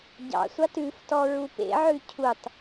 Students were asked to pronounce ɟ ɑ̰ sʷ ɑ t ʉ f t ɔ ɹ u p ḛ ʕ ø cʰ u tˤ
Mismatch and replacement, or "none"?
ø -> ʉ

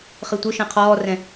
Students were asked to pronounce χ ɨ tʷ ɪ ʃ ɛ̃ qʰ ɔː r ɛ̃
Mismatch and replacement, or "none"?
none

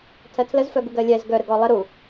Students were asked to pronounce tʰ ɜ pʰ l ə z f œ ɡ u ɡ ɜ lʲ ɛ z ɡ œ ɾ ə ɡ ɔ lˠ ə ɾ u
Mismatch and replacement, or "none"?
pʰ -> tʰ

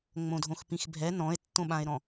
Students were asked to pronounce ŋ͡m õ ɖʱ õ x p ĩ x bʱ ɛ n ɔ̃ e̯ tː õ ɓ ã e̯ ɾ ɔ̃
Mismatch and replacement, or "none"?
ɖʱ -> dʱ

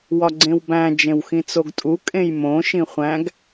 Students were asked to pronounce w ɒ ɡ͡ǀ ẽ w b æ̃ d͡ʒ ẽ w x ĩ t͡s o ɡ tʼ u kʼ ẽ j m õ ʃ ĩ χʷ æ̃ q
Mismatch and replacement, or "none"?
q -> ɡ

